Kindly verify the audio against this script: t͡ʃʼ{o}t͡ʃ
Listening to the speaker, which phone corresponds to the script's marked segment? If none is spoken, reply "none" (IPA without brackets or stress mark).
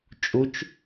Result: u